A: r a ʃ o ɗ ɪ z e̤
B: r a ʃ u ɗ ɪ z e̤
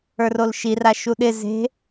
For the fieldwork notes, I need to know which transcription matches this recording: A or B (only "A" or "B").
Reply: B